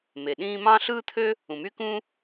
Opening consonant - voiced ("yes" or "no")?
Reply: yes